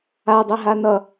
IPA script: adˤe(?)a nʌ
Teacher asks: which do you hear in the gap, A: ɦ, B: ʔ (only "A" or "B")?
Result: A